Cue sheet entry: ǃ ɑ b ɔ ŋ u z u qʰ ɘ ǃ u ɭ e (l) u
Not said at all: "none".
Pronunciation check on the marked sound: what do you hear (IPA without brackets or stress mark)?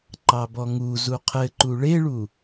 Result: ɭ